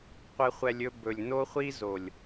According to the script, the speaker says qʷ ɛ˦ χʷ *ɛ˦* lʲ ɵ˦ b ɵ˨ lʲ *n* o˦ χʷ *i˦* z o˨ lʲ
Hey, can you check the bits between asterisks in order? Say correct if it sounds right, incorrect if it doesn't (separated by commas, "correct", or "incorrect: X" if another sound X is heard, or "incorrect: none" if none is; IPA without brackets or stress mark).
correct, correct, correct